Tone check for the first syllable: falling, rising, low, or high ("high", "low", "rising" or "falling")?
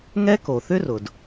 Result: high